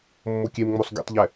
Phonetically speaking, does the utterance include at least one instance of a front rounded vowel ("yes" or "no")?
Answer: no